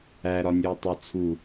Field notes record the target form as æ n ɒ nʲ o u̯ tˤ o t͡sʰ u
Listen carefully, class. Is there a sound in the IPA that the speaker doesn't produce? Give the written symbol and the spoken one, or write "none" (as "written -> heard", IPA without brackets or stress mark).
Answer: n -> ɾ